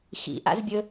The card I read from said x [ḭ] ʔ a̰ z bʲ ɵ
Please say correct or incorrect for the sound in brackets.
correct